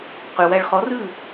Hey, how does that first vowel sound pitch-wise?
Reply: low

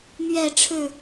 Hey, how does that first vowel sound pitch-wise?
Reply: falling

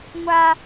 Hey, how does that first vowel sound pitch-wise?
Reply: high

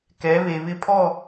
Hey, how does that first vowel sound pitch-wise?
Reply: rising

